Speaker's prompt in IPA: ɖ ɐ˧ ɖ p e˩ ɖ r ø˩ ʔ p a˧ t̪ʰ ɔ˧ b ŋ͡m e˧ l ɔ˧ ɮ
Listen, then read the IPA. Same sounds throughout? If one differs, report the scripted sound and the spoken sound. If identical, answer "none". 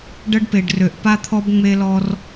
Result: ɮ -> r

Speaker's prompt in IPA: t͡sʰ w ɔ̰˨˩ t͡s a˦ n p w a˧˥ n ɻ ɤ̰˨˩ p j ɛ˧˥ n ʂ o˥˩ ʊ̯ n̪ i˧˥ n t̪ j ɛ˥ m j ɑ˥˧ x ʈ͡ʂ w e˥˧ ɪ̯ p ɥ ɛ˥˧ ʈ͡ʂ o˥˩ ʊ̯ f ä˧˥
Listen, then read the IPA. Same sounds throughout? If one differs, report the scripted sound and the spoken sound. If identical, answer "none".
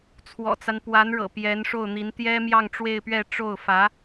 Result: x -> ŋ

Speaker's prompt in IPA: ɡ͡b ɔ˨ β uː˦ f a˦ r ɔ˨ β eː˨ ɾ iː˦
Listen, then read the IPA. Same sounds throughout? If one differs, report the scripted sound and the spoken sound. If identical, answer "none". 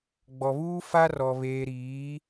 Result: iː˦ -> iː˨˦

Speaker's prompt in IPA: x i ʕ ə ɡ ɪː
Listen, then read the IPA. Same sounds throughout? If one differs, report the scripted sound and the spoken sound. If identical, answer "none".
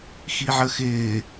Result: ɡ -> x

